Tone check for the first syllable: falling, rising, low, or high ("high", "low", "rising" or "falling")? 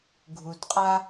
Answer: low